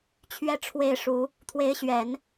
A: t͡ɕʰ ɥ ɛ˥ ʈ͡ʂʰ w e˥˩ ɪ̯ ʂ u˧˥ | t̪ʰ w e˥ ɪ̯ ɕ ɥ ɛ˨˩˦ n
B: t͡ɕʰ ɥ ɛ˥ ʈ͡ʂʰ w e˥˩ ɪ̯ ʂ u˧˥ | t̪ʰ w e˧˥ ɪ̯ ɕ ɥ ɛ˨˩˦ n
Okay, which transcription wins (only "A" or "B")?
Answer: B